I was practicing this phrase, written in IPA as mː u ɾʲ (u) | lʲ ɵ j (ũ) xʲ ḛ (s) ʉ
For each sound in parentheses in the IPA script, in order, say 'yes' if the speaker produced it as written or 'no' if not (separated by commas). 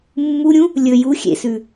no, no, yes